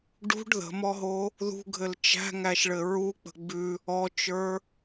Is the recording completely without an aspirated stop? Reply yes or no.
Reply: yes